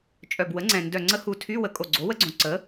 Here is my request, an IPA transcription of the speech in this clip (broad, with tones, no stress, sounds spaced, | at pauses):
t͡ʃʼ œ˨˩ b w ə˩˥ ŋ͡ǀ ɛ̃˨˩ n d œ˨˩ ŋ͡ǀ ə˧˥ h u˨˩ tʰ y˧˥˧ w ə˨˩ kʼ o˨˩ ɡ͡ǀ o˩˥ w ə˧˥ ɡ͡ǀ õ˨˩ ǀ ə˩˥